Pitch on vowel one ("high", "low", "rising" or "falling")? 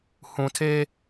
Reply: low